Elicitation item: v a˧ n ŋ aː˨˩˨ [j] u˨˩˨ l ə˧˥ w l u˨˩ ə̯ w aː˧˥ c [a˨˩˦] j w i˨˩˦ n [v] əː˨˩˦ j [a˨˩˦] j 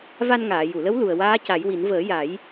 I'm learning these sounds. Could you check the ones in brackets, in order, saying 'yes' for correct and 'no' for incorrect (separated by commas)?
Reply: yes, yes, yes, yes